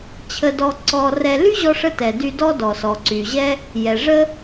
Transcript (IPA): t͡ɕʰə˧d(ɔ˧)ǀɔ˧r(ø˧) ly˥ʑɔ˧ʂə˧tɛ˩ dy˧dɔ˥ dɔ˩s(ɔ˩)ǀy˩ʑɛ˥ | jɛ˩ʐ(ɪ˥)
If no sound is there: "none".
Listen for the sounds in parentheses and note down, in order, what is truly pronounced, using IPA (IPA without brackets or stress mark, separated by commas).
ɔ˧, ɛ˧, ɔ˩, ə˥